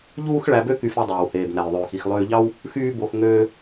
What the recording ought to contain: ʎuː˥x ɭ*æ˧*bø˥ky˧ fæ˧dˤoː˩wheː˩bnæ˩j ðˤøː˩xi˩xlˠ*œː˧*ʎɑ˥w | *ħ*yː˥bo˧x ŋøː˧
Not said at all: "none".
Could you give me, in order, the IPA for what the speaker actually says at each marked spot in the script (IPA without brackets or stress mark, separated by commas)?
æ˧, øː˧, x